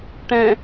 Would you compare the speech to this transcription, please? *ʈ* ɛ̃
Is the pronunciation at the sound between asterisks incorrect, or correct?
correct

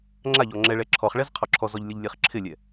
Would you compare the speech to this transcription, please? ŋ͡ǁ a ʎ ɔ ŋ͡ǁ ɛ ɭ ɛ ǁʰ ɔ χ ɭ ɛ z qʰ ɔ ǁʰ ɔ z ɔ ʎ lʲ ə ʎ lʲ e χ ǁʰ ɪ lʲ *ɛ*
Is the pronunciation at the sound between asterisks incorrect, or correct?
correct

